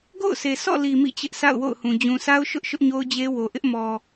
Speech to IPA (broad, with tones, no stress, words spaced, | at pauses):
ɡo̰˦˨ʊ̯sʰe˨sɔ̰˦˨li˨ mḭ˦˨t͡ɕɪ˦ʔsa̰˦˨ʊ̯ wo̰˦˨ʊ̯hũ˨ d͡ʑũ˨sa˦ʊ̯ʃʊ˦ʔ ʃʊ˦ʔɲo˦ʊ̯d͡ʑe˦wo˨ ʔɪ˦ʔmɔ˨